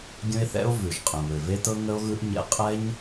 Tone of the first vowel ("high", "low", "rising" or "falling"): high